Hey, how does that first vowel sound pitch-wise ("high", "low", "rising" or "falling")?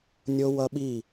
high